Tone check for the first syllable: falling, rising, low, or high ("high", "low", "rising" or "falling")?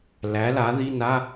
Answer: rising